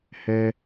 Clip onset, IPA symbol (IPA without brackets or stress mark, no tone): h